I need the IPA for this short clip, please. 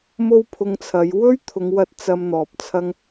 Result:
m o˥ w pʰ ʊ˧ ŋ t͡sʰ ɐ˨˧ j w ɵ˥ ɥ t̪ʰ ʊ˨˧ ŋ w ɐ˧ t̚ t͡s ɐ˧ m n̪ ɔː˨ p̚ t͡sʰ ɐ˧ ŋ

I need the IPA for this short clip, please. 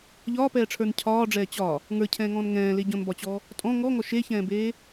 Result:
ʎ ɒː p ɛː ʈ͡ʂʰ ə˞ n cʰ ɒː ɖ͡ʐ ɛː t͡ɕ ɒ | ŋ ə˞ cʰ ɛ̃ː ŋ ɔ̃ː n ŋ ɛ̃ː l e ɟ ɔ̃ n b ɒ t͡ɕ ɔ | tʼ ɔ̃ ŋ ɔ ŋ ɔ ʃ e ç ɛ̃ː b eː

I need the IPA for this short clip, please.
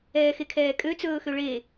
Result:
ɛː x e kʰ ɛː kʼ ø t͡s ɵː x ø ɭ eː

